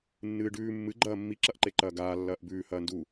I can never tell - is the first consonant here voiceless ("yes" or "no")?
no